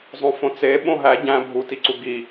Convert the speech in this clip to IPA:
zˤ õ f õ t͡s e ɓ õ ɦ æ ɟ æ̃ bʱ u t i ǀ u ɡ i

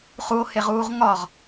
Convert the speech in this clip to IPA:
χ u o̯ h e ʁ uː ʁ ŋ ɒ ʁ

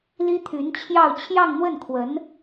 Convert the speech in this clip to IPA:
l i˥ t̪ʰ y˧˥ n t͡ɕʰ j ɑ˥˧ ʊ̯ t͡ɕʰ j ɑ˥˧ ŋ n̪ w ə˥˩ n kʰ w ə˧˥ n

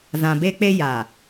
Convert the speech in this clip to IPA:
z ã˨ b e˦ k͡p e˦ j a˨

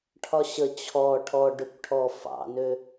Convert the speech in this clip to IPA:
ʈʰ ɒ ɕ ə t͡ɕʰ ɔ ʈʰ ɔ ɖ ø kʷ ʈʰ ɔ f ɑ̰ n ø

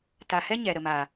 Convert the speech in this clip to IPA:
t a˨ h ɛ˦ ɲ ɛ˨ ɾ ə˨ m a˨

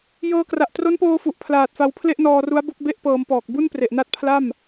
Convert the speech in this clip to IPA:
j ɤː˧ k r a˨˩ ʔ t r o˦˥ n p oː˧ f u˨˩ ʔ pʰ l aː˨˩ t̚ f a˧ w pʰ l e˥˩ ʔ n ɔː˧ r u˦˥ a̯ b o˥˩ k̚ b e˦˥ ʔ p ɤː˩˦ m p ɔː˨˩ k̚ b u˥˩ n p r e˨˩ ʔ n a˥˩ t̚ pʰ l a˥˩ m

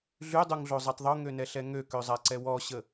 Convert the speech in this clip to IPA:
ɮ y dˤ u ŋ ɮ o zˤ ɛ tˤ ðˤ o ŋ ø n ɛ ɬ ɛ ŋ ø k ø zˤ a ǀ ɛ w ɔ ɕ ə

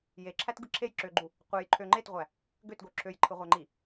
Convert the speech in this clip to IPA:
j e ǁʰ æ t ɡ ɯ ǁʰ e j ǁ ø ɡ͡ǃ u | qʷ e j ǃʰ ø ŋ͡ǃ e t ʁʷ æ | ɡ ø t ɡ o ǁʰ ø j ǃʰ ɯ ʁʷ æ ŋ͡ǃ i

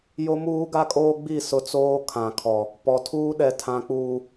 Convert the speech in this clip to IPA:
j o˦ m uː˦ ɡ a˦ kʼ oː˦ ɡ͡b i˦˨ s ʊ˦ t͡s oː˦ kʰ ã˨ kʰ ɔ˨ | p ɔ˨ tʰ uː˦ ɗ ɛ˨ tʰ ã˨ k͡p uː˨

